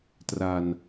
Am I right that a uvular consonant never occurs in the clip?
yes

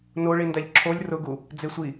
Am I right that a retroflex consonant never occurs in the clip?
no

